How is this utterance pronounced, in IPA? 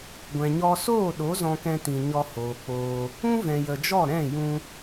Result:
ɡʷɛ̃˨ɲɔ˧ soː˦˨ɗo˨˦ zɔ̃˦kɛ̃˦tĩ˧ ɲɔ˧hoː˨k͡poː˧ | ũ˦vɛ̃˨jə˨d͡ʒɔ˦˨ ɾɛ̃˦˨jũ˧

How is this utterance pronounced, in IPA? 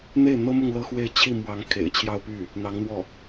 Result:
n̪e˥˩ɪ̯n̪ɤ˥mʊ˥˧ŋ lɤ˥˧xwe˥˧ɪ̯ t͡ɕʰi˥˩mwɑ˧˥ŋ kʰḛ˨˩ɪ̯t͡ɕʰjɑ˥˧ʊ̯ py˥˩ | n̪ɑ˧˥ŋn̪wɔ˥˩

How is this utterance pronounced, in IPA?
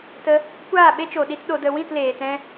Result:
tə˧ | kʷaː˦˨ɓe˦t͡ʃo˨ɗi˧t ɗo˨də˨ wĩ˦˨tleː˨tɛ̃˧

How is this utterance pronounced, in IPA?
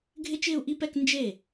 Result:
ɡʱɪ˥t͡ʃɪː˥˧u̯ʔi˥˧pɛ˥˧k nd͡ʒe˥˩

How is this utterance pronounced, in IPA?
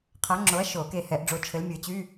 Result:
qʰa˨˥ŋ͡ǁo˨˥ɐ̯ ʃo˨˩˦ke˧˩ hɛ˨˩˦ʔɖ͡ʐo˨˥t͡ʃʰɘ˨˥l mʲə˞˨˩˦t͡ɕy˧˥˧

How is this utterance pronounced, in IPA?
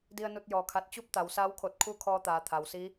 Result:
di˧ə̯nu˧t̚jɔː˩kʰa˧˩t̚ t͡ɕu˥˨p̚t̪a˩wsaː˧˥wkʰo˧˩t̚ kʰu˥˨kʰɔː˧t̪aː˩˧ t̪ʰa˩wsi˧˥

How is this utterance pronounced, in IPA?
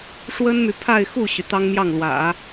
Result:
ʂwə˥nmy˨ pʰa˥˧ɪ̯ xu˥˩ɕy˩ t̪ɑ˥ŋmjɑ˥˩ŋlwä̰˨˩˦

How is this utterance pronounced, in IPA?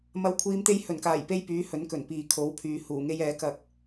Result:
mɐ˨˥wkʷʰiː˨˧mt̪e˧j hɵ˨˩nkaː˨˩jpe˧j pyː˨˥hɵ˨˥nkɵ˨˩n piː˨kʰo˨˥wpʰyː˨ huː˨˩ŋe˧jɛː˨˥ kɐ˧k̚

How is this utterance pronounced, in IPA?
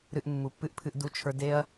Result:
ɾɨ˧ʔmːu˨pːɨ˦ʔpʰɨ˧ʔ du˧t͡ʃʰə˞˧ de˦ɐ̯

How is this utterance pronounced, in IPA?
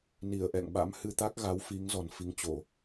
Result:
ni˧˩ə̯ʔɛ̰˧˨ŋ ɓa̰˧˥mhɨ˧t̪a˦˥k̚ ɣa˨˦w fi˨˦ŋ zɔ˨˩nfi˨˦ŋt͡ɕo˧˩˨

